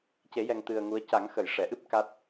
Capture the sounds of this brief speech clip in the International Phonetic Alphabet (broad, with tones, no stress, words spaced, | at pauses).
ce˨˩˦jɛ˨˩ŋ t̪ɨ˨˩ə̯ ŋu˧˥ə̯ ca˨˩˦ŋxə˨˩˨j ʂɛ˨˩˨ ʔɨ˦˥p̚ ka˦˥t̚